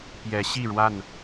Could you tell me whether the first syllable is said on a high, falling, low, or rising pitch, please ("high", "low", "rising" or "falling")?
rising